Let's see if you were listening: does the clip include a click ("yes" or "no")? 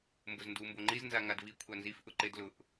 yes